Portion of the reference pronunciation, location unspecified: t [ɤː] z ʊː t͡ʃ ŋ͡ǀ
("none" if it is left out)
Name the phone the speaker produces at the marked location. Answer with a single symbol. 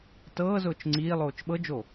ɤː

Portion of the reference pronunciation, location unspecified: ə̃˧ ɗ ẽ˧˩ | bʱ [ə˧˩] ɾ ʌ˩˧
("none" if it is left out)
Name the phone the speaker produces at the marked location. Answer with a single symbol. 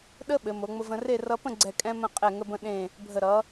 ə˧˩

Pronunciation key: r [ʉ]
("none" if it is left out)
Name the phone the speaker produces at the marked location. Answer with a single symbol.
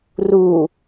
u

